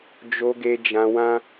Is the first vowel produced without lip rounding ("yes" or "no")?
no